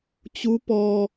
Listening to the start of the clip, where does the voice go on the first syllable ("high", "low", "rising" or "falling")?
rising